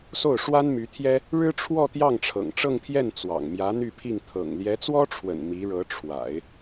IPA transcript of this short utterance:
s o˥˩ ʊ̯ ʂ w a˥ n m y˧˥ t̪ʰ j ɛ˥ | ɻ ɻ̩˥ ʈ͡ʂʰ w ɔ˥˧ t̪ j ɑ˥˩ ŋ ʈ͡ʂʰ ɤ̰˨˩ ŋ ʈ͡ʂ ɤ˥˧ ŋ pʰ j ɛ˥˩ n t͡s w ɑ̰˨˩ ŋ m j ä˧˥ n̪ y˥˧ pʰ i˥˩ ŋ t̪ʰ ɤ̰˨˩ ŋ l j ɛ˧˥ t͡s w ɔ˥ ʈ͡ʂʰ w ə̰˨˩ n m i˧˥ ɻ ɤ˧˥ ʈ͡ʂʰ w a̰˨˩˦ ɪ̯

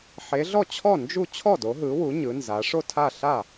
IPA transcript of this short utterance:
ħ e˨˦ ɮ ɔ˥˩ t͡ɕʰ ɔ˥˩ n d͡ʒ u˥˩ t͡ɕʰ ɔ˥˩ d o˨˦ ɦ ɯ˨˦ w u˨˦ ɲ ɯ˨˦ n z a˨˦ ʂ o˥˩ tʰ a˥˩ ɬ a˥˩

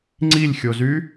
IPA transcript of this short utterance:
ŋ͡ǀ i lʲ xʲ o z y

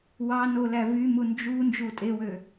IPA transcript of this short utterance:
w ɑ n o l æ v y m u n d͡ʒ u n d͡ʒ u tʼ e w ø

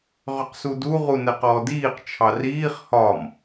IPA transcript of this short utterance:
ʁ ʏ q s u d u ʁ u n ɛ q ɔː d iː q t͡ʃʰ ɑ r iː χ h ɒ m

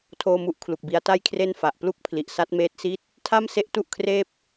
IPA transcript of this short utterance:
tʰ oː˥˩ m u˥˩ ʔ kʰ l u˨˩ k̚ b i˦˥ a̯ t a˥˩ j kʰ r e˥˩ n f a˨˩ ʔ p l u˦˥ k̚ pʰ l i˨˩ ʔ s a˦˥ t̚ m eː˦˥ t̚ s i˥˩ t̚ | tʰ a˥˩ m s e˦˥ ʔ t u˥˩ ʔ kʰ r eː˥˩ p̚

